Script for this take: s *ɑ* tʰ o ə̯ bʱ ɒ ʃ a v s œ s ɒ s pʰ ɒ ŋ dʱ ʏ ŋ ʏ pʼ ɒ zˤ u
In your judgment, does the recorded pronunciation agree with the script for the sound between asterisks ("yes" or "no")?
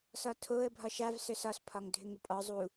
no